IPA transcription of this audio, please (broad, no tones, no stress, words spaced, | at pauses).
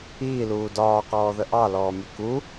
iːluː dɒːqɔːðə ʔɑlɔːmʲu ku